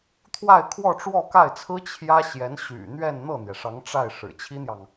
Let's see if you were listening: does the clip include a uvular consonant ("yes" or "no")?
no